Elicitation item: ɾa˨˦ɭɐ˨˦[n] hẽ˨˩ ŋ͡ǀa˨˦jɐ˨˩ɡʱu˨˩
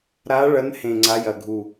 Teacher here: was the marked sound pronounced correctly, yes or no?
yes